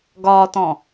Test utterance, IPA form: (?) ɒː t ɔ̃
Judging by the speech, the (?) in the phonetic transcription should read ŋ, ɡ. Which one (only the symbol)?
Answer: ɡ